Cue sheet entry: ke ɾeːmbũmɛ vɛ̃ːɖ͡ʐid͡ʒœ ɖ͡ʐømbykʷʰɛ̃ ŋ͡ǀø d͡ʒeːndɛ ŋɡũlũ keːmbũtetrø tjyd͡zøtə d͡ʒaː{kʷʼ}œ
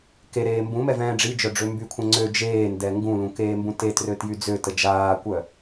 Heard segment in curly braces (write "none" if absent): kʷ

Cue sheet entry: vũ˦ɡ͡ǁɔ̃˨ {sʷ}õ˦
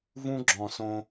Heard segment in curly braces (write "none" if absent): s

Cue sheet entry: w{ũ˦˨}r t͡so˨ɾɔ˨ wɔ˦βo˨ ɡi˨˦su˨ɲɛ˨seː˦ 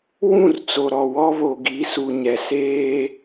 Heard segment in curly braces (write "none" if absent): ũ˦˨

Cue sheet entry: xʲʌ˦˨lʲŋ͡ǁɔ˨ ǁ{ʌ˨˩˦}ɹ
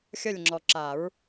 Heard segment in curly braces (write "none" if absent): a˨˩˦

